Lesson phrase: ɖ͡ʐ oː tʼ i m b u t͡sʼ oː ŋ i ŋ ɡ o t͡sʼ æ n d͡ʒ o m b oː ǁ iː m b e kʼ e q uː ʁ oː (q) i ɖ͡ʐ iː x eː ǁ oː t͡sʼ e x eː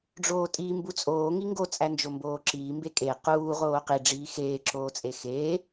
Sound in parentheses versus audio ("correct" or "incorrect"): correct